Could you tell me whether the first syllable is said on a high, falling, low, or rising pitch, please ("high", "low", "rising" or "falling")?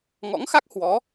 rising